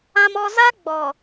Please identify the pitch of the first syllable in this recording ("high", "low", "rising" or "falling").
high